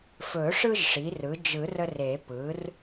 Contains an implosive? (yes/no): no